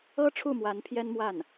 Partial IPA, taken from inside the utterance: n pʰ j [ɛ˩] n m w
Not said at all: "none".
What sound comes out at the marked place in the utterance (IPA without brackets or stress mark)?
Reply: ɛ˥